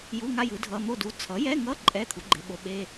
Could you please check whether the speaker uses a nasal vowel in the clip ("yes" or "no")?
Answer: no